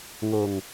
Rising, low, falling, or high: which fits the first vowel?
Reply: low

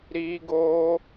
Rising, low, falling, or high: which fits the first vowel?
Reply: high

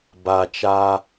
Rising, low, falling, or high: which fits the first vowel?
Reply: low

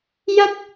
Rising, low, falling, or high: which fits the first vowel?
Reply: high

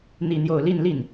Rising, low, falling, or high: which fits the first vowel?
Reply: falling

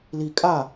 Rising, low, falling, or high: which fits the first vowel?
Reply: low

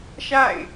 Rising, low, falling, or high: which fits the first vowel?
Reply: falling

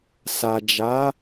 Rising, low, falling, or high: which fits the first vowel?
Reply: low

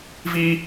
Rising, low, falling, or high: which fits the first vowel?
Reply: high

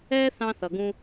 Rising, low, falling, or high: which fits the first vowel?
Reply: high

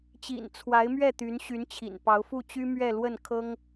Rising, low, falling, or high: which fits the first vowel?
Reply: low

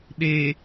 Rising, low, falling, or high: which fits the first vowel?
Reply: low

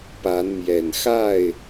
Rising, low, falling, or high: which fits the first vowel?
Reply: rising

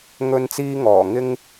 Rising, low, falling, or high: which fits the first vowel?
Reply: high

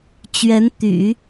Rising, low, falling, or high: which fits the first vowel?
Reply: rising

